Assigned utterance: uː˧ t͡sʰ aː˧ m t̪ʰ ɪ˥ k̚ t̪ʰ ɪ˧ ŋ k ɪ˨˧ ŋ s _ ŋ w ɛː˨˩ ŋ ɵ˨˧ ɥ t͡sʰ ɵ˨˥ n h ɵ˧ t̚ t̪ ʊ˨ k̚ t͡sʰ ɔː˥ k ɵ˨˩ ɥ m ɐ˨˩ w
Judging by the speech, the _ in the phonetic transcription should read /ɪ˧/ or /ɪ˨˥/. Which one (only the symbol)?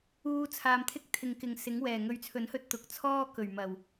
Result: ɪ˨˥